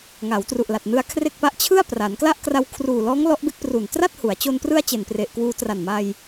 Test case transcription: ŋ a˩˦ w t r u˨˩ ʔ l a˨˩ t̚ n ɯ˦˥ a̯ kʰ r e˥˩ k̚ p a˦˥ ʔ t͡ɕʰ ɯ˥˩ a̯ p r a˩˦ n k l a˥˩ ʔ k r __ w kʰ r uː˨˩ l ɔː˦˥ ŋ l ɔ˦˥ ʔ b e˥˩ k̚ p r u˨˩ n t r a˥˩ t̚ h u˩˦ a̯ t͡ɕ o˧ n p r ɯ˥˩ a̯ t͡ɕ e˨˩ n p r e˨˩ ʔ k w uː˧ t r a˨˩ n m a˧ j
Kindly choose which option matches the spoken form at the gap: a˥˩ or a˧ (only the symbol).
a˧